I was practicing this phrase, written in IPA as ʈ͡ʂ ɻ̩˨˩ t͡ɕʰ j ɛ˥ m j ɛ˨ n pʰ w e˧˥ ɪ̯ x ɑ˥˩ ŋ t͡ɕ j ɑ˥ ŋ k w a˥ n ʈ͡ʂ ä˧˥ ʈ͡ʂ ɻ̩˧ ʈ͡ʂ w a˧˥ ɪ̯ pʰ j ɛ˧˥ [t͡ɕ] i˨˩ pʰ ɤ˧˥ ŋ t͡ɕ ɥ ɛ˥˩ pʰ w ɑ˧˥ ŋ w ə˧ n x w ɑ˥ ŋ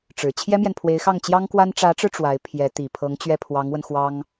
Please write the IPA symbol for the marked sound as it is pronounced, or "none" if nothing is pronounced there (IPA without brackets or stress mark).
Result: t̪